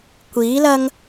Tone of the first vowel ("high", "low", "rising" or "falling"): rising